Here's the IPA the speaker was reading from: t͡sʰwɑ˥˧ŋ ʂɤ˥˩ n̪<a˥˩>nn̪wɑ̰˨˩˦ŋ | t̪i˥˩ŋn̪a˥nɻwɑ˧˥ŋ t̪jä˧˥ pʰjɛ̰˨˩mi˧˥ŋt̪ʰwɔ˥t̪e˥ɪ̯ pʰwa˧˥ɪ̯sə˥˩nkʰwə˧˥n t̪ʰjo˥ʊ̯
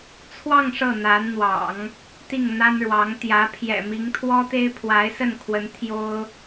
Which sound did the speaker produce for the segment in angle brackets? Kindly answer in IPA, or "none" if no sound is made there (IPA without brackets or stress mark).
a˧˥